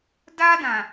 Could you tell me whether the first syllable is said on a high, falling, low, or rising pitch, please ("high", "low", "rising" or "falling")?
high